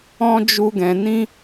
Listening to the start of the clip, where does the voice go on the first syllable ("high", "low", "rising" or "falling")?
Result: high